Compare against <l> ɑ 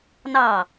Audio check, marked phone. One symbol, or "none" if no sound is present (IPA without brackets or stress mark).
n